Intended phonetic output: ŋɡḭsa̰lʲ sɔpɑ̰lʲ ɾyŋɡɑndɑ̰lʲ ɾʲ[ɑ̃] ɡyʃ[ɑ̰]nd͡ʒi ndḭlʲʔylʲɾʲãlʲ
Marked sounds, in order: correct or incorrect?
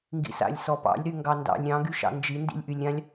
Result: correct, correct

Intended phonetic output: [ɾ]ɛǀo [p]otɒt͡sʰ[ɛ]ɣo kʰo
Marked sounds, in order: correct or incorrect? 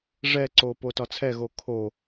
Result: incorrect: ʐ, correct, correct

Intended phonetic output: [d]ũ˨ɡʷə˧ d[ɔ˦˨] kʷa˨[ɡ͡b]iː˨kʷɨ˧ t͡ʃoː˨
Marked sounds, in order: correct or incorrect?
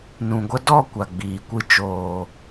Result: incorrect: n, correct, correct

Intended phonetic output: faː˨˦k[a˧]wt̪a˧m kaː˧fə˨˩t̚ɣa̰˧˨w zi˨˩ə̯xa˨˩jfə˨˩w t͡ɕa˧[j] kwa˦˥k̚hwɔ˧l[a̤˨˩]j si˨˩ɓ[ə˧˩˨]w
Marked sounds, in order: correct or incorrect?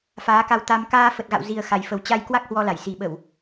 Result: correct, correct, incorrect: a˧˩, correct

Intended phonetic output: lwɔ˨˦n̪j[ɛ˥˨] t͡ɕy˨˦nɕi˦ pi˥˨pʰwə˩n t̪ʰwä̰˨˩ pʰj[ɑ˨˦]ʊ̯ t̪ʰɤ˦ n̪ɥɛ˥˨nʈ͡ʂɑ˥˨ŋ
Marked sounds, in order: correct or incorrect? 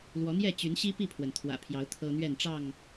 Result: correct, correct

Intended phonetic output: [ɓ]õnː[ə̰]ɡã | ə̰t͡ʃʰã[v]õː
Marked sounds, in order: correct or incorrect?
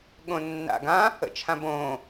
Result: incorrect: ɠ, incorrect: a̰, incorrect: b

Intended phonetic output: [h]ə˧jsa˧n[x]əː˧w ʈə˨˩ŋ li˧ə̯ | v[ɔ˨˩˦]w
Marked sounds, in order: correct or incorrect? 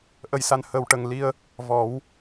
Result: incorrect: ʔ, incorrect: h, correct

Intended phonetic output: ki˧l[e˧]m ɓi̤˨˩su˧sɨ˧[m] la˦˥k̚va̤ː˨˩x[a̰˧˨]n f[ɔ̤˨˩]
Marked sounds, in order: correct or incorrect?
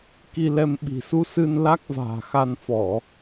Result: incorrect: ɛ˧, incorrect: n, incorrect: a˧, incorrect: ɔ˧˩˨

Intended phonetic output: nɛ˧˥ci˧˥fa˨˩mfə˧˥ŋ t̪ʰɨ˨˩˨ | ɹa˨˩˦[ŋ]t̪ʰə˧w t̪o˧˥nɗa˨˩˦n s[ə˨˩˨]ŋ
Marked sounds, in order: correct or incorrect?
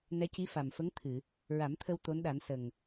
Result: incorrect: m, incorrect: ə˨˩

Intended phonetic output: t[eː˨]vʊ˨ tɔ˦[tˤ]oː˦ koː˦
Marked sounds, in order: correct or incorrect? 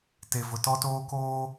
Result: incorrect: e˨, incorrect: t

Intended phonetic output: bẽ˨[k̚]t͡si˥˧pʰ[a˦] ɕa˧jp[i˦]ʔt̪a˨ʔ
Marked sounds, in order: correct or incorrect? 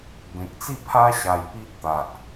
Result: correct, correct, correct

